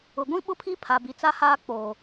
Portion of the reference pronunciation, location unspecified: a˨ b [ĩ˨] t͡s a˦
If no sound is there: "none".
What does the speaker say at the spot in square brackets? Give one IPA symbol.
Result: i˨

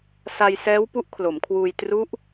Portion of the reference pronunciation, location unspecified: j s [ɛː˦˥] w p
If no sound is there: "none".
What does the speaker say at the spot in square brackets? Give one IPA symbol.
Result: ɛː˦˥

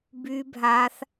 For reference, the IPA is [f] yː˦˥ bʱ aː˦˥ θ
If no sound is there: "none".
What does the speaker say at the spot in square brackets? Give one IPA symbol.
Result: b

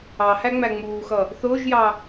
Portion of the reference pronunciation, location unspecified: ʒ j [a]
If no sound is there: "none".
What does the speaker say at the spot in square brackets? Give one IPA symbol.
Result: ɑ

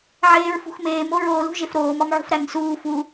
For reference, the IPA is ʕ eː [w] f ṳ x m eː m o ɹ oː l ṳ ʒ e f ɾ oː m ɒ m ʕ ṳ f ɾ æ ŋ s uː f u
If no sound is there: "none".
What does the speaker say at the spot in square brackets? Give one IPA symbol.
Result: ɹ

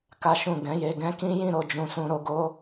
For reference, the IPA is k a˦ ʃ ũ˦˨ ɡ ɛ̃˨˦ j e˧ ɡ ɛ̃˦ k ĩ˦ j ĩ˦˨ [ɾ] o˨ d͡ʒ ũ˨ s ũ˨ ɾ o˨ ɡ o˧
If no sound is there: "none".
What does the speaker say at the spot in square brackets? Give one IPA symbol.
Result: ɾ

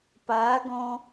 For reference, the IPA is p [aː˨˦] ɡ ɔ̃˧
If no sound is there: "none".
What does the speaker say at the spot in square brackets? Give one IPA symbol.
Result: aː˨˦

